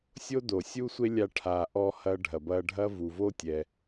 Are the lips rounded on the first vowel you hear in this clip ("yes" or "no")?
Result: yes